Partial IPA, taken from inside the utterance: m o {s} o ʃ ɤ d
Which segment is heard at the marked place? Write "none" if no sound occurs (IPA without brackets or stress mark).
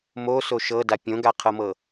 s